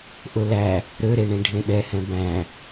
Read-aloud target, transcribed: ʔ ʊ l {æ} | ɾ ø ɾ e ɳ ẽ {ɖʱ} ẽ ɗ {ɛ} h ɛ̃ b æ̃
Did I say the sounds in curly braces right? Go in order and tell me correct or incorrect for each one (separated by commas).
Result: correct, correct, correct